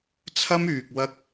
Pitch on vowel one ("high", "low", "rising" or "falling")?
high